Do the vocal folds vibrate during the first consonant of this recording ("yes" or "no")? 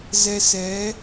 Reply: yes